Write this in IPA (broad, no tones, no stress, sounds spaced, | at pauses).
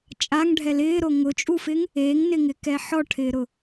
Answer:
t͡ʃʼ a ŋ ɖʱ ɛ l ɪː ɾ o ŋ ʊ t͡ʃʼ u f ɪ ŋ | e ŋ n ɪ ŋ ɪ k ɛ ħ ɔ ʈʰ ɪː ɾ ʊ